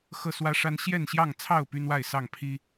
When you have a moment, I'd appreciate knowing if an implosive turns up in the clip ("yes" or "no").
no